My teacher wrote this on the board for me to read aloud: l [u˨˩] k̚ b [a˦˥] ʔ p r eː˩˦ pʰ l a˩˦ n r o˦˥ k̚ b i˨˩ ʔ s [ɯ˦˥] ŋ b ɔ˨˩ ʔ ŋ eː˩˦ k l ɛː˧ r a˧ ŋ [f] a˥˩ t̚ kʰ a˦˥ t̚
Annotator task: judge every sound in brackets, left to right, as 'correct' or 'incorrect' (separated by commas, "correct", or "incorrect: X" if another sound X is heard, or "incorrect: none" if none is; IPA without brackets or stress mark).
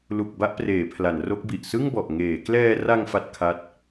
correct, correct, incorrect: ɯ˥˩, correct